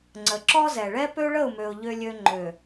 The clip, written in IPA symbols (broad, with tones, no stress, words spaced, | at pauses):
ŋ͡ǀə˨ǁɔ˦zɛ˨ ɭɛ˦pø˦ɭə˦˨ʊ̯mø˨ʊ̯ ʎø˦lʲø˦ ŋ͡ǃø˨